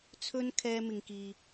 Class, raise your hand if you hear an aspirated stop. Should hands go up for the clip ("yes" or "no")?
yes